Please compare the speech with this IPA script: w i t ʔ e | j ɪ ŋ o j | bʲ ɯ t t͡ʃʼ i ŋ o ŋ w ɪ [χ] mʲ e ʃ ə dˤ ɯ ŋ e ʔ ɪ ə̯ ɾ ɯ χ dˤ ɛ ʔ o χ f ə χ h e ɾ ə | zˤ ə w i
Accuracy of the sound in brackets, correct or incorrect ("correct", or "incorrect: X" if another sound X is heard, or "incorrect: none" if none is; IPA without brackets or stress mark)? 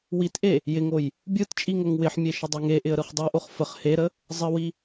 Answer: incorrect: ħ